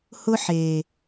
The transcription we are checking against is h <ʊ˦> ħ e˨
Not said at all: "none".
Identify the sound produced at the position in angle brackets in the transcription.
ʊ˦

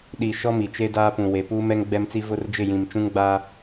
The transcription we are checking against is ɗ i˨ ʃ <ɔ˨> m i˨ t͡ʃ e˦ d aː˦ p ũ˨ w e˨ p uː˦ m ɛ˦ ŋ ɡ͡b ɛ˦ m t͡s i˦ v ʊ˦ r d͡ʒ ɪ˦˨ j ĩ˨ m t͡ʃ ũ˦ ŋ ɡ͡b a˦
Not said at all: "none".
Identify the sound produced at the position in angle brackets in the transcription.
ɔ˦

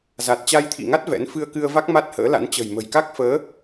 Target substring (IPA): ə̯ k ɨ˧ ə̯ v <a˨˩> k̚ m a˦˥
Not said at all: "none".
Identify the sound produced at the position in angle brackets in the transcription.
a˦˥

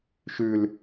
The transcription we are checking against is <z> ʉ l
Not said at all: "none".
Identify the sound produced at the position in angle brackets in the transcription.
ʃ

